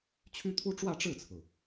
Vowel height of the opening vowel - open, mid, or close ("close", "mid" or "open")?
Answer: close